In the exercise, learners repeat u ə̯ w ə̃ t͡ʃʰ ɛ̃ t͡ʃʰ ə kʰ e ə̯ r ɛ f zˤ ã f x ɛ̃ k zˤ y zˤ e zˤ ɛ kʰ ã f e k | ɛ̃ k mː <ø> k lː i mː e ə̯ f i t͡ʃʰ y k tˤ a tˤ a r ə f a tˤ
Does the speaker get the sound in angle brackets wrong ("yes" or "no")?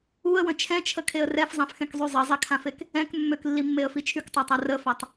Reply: no